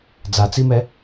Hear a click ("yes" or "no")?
no